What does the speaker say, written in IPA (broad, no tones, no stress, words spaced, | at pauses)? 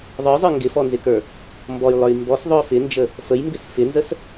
ðˤə˞zˤə˞ ŋɡɪfɔnzɪkə˞ | mbɔjlˠə˞j mbɔs ðˤœfɪnd͡ʒə | fəjmbɪs fɪnzəs